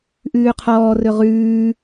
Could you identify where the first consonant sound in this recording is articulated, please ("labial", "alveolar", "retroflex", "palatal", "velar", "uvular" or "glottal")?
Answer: glottal